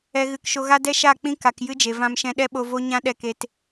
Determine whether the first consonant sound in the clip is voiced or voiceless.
voiced